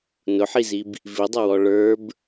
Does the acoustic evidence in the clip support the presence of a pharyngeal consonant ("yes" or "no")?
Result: yes